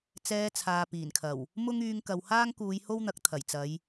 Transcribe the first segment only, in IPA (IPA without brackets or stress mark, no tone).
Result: t͡s